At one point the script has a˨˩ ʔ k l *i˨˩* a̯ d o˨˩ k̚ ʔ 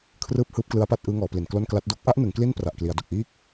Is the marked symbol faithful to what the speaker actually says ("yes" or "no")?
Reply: no